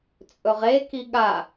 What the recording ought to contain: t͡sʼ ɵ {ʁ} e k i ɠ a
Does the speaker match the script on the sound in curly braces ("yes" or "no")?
yes